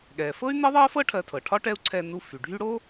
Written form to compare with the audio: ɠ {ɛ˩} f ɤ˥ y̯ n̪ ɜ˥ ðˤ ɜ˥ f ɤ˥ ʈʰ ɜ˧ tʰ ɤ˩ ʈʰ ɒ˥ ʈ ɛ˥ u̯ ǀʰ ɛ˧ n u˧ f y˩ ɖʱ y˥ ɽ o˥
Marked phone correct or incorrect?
correct